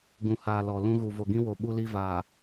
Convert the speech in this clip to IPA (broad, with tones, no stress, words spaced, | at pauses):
ɡũ˨haː˨ lɔ˨ lũ˦ ɣu˨vo˨ɡĩ˦wo˨ ɓu˦li˦ vaː˨